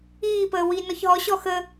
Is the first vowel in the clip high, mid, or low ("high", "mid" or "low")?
high